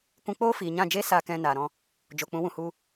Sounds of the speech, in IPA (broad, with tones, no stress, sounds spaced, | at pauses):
kʷ ũ˧ k͡p oː˦ f iː˨ ɲ ã˦˨ d͡ʒ eː˦ s a˧ k ɛ̃˧ n aː˨ ɾ ɔ̃˧ | d͡ʒ o˨ k͡p ũ˨˦ w ũ˨ h u˧